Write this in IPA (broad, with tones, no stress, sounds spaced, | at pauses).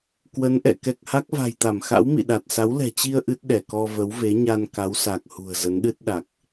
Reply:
k w ə˨˦ n ʔ ɛ̰˧˨ k ɛ˨˩ k̚ h a˦˥ k̚ v a̤˨˩ j t̪ a˧˩ m x a̰˧˥ w m ḭ˧˨ ɗ a˨˩ t̚ s a˨˦ w l ɛ̤˨˩ t͡ɕ i˧ ə̯ ʔ ɨ˦˥ t̚ ɗ ɛ˧˩ k ɔ˧ v ə˨˦ w v e˨˦ ɲ a˧ n k a˨˦ w s a˨˩ k̚ h ṳ˨˩ ə̯ z ə˨˦ n ɗ ɨ˦˥ t̚ ɗ a˨˩ k̚